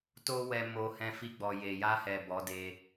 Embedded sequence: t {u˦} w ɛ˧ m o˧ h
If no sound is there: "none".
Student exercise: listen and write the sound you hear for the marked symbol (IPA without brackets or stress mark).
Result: o˦